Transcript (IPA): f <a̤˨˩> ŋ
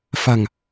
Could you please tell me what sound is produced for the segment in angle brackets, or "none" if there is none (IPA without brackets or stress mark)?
a̤˨˩